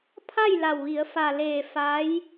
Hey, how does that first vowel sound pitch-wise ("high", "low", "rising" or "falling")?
falling